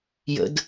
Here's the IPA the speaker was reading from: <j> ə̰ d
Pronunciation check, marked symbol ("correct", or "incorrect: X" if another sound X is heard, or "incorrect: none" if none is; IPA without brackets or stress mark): correct